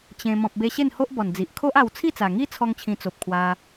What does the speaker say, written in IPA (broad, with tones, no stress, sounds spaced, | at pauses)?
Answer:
t͡ɕ ẽ˧ m ɔ̃˨ p̚ b e˧ ɕ e˥˧ n h o˦ ʔ b ɔ˨˩ n d͡z i˨ ʔ kʰ o˦ ʔ a˧ w t͡sʰ i˥˧ t͡s a˨˩ ŋ i˦ t͡sʰ ɔ˦ ŋ t͡ɕʰ ĩ˧ t͡s o˨ p̚ kʰ w a˧